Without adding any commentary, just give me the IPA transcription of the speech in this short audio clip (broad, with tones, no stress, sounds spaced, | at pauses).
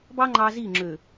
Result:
b ɑ˦ ŋ͡ǃ ɑ˦ z i˦˨ ŋ͡ǁ ø˨